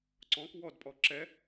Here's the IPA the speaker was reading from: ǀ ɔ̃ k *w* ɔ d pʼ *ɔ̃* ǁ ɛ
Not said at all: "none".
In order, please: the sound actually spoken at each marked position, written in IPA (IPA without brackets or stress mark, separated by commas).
w, ɔ